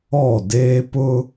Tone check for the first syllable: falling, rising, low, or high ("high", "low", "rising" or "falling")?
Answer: falling